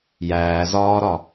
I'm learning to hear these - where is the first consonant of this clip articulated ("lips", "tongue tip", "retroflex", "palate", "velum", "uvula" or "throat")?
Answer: palate